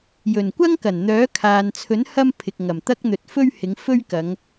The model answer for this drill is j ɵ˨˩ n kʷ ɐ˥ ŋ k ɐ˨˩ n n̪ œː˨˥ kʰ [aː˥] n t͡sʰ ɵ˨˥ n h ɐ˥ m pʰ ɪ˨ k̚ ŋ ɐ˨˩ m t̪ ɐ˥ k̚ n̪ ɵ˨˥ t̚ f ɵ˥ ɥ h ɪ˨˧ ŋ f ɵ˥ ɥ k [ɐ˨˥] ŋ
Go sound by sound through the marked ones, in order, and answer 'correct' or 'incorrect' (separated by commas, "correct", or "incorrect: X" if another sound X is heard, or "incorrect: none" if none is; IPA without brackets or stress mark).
incorrect: aː˨, incorrect: ɐ˨˧